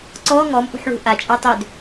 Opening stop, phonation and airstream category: click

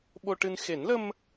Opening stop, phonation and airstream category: implosive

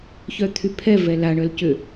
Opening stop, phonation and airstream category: aspirated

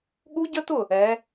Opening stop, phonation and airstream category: implosive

